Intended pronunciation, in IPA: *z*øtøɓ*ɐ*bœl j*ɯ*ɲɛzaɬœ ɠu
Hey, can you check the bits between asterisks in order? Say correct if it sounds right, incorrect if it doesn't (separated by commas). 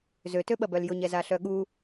correct, correct, incorrect